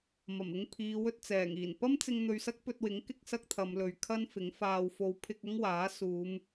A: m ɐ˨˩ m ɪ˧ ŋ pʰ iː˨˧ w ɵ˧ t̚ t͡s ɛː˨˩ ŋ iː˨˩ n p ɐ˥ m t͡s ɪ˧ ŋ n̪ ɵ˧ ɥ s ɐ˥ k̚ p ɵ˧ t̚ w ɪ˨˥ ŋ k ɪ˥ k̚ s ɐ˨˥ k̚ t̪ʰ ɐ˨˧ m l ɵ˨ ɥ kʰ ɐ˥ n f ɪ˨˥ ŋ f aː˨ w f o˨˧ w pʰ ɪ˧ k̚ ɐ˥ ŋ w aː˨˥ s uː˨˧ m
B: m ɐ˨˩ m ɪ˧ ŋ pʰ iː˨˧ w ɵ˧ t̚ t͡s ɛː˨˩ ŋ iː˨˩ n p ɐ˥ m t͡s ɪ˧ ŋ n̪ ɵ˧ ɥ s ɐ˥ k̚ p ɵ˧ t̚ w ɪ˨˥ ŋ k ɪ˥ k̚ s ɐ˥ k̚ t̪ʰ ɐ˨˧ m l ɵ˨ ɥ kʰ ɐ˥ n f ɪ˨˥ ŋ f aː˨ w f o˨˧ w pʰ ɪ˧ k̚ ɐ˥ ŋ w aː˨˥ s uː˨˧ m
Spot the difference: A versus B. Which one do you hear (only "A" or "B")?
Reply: B